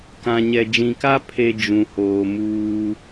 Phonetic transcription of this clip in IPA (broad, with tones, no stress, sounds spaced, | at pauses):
k ã˨ ɲ ɛ˨ d͡ʒ ĩ˨ k a˦ pʰ e˦ d͡ʒ ũ˨ h oː˨ m uː˦